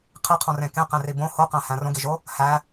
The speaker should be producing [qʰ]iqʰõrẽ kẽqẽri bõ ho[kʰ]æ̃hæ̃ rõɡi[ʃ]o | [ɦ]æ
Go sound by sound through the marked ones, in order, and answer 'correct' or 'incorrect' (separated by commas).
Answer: correct, incorrect, incorrect, incorrect